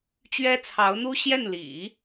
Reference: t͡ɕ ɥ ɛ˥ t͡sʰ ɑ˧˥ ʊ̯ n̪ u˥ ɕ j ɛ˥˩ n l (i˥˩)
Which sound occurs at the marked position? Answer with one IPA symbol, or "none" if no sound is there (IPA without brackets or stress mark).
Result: ḭ˨˩˦